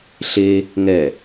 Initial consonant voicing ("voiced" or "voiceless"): voiceless